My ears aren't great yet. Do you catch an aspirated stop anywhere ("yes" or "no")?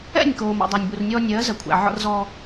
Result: yes